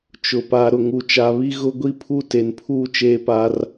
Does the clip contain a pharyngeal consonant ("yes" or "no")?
no